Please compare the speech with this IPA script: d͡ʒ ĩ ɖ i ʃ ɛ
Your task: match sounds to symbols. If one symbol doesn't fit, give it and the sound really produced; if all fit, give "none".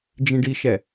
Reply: none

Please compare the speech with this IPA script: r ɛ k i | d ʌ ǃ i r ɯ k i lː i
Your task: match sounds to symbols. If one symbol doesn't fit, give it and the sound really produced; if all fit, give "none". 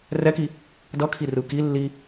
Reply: ǃ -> kʰ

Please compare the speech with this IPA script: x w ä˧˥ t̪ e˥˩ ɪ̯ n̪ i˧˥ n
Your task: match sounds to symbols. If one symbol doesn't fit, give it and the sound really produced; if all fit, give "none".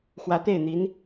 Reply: none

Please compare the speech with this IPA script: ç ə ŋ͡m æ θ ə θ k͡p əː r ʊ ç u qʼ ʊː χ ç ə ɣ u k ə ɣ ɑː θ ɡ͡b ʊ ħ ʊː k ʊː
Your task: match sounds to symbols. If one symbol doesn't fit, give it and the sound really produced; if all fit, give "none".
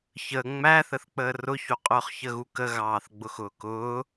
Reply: ħ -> x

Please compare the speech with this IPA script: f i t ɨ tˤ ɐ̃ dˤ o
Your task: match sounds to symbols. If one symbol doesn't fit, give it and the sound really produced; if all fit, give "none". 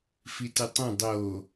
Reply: none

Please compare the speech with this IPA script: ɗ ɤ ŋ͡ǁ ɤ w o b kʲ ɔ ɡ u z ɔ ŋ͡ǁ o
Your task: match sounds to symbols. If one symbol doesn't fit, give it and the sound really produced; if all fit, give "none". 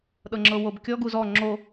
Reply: none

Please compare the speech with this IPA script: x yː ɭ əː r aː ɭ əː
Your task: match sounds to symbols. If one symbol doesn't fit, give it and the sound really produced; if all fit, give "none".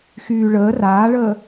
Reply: none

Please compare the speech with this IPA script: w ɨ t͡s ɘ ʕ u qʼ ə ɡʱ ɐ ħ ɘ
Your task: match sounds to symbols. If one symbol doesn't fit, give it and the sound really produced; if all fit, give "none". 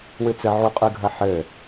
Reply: ə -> ɨ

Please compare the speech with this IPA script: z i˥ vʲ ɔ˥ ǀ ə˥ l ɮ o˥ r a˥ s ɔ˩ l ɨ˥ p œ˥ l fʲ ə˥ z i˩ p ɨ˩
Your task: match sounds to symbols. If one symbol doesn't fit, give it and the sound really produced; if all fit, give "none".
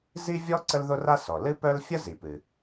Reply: ɮ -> ð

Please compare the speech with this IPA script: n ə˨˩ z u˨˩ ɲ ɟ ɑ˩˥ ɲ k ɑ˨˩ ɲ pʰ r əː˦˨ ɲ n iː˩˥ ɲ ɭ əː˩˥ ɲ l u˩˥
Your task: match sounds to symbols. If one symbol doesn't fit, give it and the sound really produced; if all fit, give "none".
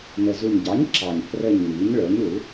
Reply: k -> ǁ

